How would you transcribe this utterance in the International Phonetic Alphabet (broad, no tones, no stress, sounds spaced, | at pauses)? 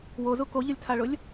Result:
w o z u k o ʎ ʊ lʲ tʰ a ɭ ʊ lʲ